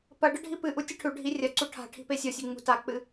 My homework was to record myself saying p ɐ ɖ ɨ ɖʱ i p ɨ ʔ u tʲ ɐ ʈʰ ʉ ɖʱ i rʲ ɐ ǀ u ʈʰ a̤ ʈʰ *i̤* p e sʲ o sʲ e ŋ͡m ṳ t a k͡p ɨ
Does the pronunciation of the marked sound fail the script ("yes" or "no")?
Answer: no